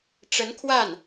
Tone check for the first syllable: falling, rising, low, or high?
rising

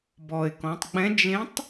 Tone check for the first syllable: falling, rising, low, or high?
low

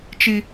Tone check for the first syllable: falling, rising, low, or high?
high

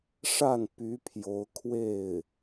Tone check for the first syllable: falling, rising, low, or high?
falling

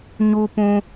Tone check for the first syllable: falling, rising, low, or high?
high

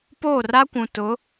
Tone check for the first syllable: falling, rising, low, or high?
falling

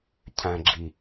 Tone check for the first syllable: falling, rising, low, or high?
low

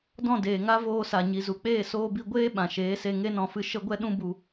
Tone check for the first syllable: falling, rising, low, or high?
falling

